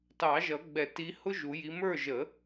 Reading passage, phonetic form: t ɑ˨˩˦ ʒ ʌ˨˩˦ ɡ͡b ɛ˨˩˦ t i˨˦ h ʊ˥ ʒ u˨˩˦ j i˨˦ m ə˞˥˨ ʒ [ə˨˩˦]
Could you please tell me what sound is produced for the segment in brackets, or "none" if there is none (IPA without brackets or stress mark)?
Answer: ə˨˩˦